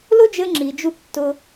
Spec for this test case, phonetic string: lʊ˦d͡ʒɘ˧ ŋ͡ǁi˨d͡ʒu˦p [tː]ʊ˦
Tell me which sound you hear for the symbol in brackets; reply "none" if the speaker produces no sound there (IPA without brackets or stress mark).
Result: tː